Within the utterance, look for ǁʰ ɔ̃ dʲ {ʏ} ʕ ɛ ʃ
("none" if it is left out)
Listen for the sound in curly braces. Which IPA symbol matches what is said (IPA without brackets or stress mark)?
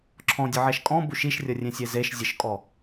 ə